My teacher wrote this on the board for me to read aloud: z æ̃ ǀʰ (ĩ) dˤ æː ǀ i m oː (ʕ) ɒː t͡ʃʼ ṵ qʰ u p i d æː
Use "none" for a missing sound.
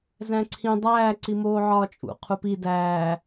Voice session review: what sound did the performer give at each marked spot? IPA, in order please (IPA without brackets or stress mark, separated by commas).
ĩ, ʕ